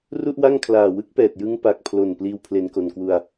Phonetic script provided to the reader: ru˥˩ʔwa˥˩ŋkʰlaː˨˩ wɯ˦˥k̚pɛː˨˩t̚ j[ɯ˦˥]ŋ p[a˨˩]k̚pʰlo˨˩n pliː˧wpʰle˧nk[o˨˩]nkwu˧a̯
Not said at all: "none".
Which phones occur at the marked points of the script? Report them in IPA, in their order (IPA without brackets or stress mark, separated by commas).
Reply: ɯ˦˥, a˨˩, o˨˩